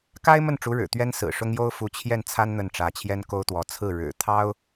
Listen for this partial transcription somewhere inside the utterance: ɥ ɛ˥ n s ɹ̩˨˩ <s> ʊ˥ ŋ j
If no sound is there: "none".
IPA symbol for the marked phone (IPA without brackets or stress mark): ʂ